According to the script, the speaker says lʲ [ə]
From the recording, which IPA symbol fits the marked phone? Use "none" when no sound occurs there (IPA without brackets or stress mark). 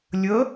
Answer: ə